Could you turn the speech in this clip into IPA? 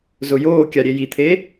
z ʊ j oː kʲ a ɾʲ e j i t̪ʰ e

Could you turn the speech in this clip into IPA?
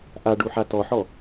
ʔ a ɖ u ħ a t ɔ ħ ɔ

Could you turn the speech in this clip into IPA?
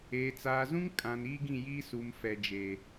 eː˨ t͡s aː˨ z ũ˦ ŋ kʼ ã˨ n iː˦ ɡ ĩ˦˨ j iː˦ s u˨ m f ɛ˨ d͡ʒ eː˨

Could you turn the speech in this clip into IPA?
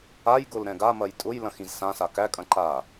a j ɡ ʊ l ɾ ɛ̃ ɡ a m ɐ j tʼ ʊ j l ɐ̃ x ĩ z s ã s a k æ kʼ ɐ̃ ǃ a

